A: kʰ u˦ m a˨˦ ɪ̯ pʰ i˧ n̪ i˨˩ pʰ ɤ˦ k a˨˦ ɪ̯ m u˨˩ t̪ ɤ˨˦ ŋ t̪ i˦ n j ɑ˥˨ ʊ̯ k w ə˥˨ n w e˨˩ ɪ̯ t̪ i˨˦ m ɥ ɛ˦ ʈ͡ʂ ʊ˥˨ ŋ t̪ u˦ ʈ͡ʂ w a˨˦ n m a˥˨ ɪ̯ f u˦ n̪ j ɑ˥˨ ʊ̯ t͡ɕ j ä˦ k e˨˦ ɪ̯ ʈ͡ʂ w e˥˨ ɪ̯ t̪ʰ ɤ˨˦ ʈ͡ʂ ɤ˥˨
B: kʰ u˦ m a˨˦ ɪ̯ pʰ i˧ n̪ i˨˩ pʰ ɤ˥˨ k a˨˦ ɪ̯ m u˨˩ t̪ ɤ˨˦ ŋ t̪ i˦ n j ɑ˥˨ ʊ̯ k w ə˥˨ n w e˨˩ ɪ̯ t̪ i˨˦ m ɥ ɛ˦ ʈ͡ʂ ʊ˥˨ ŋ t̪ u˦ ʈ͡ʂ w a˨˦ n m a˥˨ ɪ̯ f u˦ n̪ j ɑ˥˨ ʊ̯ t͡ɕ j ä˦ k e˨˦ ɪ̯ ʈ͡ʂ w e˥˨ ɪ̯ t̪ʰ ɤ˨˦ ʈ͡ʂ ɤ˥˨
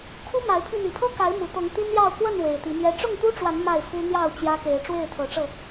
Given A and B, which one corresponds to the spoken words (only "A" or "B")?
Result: A